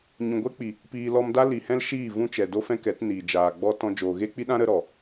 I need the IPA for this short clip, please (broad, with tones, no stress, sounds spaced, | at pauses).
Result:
ɲ ũ˨ ɡʷ ɛ˦ k͡p i˨ | p iː˧ l ɔ˦ m d a˦ l i˨ h ɛ̃˦ l ʃ iː˦˨ v ũ˦ t͡ʃ ɛ˨ d o˦ f ɛ̃˦ k ɛ˨˦ t n iː˨ d͡ʒ aː˨ ɡ͡b ɔ˦ t ɔ̃˧ d͡ʒ oː˨ ɣ e˦ k͡p i˦ ɗ ã˦ ɾ ə˦ ɾ ɔ˨